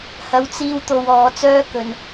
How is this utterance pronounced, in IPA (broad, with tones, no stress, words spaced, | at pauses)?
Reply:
hɐ˨˧wt͡siː˧wt̪o˨w ɔː˨˧t͡sœː˥kɵ˨n